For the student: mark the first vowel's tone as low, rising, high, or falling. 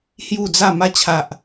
falling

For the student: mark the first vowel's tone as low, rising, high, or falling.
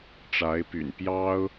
rising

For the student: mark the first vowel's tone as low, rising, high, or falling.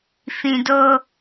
low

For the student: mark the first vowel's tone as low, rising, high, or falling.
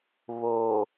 low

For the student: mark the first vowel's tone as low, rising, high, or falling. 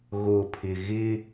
low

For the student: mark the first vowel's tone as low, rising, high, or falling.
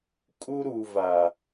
high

